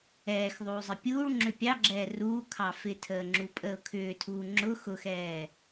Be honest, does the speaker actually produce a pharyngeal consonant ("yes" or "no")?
no